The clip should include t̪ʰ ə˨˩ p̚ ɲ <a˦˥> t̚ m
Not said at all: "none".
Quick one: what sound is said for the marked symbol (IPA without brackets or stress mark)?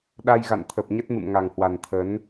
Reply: ə˦˥